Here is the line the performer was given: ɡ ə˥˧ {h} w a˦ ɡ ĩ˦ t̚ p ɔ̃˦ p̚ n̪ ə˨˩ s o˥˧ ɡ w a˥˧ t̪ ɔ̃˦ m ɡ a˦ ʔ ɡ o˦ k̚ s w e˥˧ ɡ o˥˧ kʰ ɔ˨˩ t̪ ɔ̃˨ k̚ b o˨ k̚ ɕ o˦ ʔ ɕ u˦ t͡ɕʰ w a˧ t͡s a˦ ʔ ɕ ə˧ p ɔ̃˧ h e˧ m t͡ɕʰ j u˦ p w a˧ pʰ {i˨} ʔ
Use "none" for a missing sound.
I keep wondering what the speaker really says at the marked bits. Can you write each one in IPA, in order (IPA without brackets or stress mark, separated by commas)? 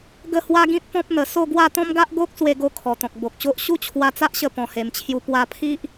h, i˦